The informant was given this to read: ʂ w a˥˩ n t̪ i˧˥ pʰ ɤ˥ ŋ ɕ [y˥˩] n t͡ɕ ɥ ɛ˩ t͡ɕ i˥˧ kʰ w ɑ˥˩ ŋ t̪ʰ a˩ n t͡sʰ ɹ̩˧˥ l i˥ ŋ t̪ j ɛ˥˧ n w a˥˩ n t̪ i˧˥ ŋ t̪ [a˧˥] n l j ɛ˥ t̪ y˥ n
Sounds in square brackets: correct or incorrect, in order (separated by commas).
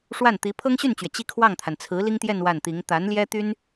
correct, correct